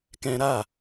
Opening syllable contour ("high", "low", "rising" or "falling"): high